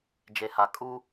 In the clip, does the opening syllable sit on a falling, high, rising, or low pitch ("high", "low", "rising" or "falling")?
low